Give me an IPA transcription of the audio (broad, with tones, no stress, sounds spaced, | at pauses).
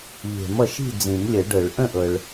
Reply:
ʎ e̤˨˩˦ m ʌ˨ ʃ i̤˥˨ d͡z ĩ˨˩˦ m lʲ ə˨˩˦ ɖ ɤ˨˩˦ ɭ ʔ ə̃˥˨ ʔ ɤ˨ ɭ